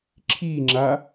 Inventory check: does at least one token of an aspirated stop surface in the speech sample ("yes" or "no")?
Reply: yes